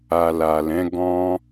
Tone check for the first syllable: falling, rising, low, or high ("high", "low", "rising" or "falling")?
low